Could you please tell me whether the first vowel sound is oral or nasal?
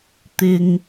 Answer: oral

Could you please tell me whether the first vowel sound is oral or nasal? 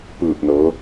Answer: oral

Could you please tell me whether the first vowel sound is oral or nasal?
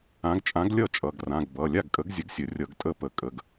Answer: nasal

